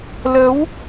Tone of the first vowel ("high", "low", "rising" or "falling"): rising